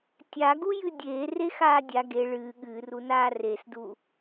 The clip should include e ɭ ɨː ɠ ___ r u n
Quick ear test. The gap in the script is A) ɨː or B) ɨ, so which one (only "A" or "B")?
A